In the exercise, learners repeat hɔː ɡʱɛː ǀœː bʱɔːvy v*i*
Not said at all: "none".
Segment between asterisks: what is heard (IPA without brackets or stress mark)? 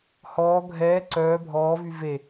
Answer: e